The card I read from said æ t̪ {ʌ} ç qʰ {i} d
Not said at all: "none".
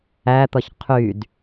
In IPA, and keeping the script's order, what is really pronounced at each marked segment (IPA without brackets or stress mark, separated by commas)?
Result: ʌ, y